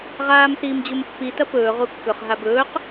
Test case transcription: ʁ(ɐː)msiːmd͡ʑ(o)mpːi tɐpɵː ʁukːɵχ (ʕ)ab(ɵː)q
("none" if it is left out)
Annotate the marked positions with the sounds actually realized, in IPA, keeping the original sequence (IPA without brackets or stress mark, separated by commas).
aː, u, ɦ, ɵː